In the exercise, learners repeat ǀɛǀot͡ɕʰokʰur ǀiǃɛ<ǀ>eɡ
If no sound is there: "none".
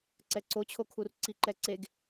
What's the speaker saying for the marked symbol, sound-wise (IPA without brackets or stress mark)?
ǀ